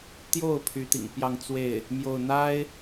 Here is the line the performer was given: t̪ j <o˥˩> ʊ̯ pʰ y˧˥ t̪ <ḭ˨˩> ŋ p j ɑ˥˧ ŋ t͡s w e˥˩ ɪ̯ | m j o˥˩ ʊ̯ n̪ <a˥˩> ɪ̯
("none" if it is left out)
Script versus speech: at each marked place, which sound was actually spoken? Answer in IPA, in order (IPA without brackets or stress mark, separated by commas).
o˥˩, ḭ˨˩, a˥